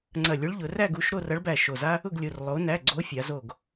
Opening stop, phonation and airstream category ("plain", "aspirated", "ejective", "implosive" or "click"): click